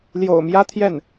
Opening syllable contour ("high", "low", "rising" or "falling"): low